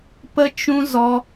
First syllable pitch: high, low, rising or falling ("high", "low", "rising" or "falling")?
high